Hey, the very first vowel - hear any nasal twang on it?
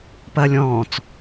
no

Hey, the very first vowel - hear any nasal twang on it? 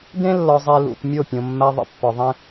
yes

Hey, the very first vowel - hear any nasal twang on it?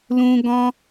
yes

